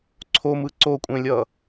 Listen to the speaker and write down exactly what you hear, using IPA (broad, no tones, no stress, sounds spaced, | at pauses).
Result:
ǀʰ o m ɯ ǀ o kʷʼ ẽ lʲ ʌ